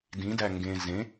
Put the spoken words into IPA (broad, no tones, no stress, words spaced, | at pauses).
dĩdæ ŋɡẽ zẽ